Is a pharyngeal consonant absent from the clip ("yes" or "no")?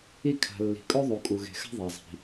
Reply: yes